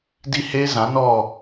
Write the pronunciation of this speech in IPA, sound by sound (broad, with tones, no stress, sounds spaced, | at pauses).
d i˦ h e˦ z ã˨˦ n ɔ˦˨